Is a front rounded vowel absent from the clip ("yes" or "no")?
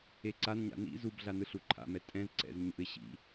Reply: yes